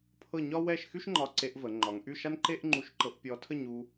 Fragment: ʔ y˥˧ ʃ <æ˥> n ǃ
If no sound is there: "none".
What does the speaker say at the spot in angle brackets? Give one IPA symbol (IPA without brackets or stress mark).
a˥